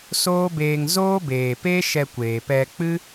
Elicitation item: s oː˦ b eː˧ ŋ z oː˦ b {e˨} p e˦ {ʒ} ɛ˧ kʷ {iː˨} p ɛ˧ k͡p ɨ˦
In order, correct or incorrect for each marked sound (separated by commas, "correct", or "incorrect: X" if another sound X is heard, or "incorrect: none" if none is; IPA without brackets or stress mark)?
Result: incorrect: eː˨, incorrect: ʃ, incorrect: eː˨